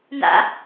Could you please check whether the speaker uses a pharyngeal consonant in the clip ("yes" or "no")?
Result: no